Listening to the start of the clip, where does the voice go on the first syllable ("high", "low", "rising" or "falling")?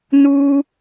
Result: high